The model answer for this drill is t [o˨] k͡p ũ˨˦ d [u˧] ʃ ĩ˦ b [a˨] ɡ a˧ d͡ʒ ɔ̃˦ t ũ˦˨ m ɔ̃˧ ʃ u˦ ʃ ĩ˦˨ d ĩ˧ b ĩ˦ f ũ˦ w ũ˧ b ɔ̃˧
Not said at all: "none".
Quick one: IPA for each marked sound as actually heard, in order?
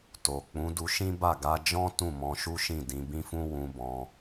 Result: o˨, u˧, a˦˨

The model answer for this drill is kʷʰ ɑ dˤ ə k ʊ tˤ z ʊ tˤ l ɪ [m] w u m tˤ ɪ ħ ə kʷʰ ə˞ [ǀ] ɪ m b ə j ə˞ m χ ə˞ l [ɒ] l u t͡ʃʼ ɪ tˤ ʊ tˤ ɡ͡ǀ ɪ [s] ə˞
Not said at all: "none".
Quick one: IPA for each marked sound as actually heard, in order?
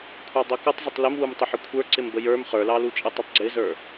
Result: m, ǀ, ɑ, z

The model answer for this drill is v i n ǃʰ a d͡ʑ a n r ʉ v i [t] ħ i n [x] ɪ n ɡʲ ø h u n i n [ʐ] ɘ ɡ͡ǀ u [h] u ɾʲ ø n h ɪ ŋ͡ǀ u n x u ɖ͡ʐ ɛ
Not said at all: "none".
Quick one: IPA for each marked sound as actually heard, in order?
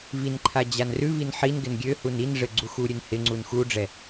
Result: n, ɡ, ʐ, x

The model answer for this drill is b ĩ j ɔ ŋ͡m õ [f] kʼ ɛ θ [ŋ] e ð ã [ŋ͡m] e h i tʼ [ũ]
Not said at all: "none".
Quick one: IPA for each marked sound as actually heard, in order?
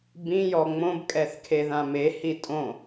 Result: b, kʰ, m, õ

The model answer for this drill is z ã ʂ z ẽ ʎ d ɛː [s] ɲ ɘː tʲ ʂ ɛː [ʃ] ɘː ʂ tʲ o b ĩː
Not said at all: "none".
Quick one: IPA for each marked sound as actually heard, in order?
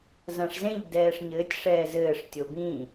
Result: ʂ, z

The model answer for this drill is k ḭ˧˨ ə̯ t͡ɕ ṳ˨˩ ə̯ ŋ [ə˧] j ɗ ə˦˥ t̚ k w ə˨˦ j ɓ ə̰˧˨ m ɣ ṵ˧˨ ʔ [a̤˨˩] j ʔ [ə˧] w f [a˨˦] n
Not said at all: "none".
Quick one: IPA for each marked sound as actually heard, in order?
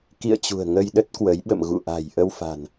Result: ə˧, a̤˨˩, ə˧, a̤˨˩

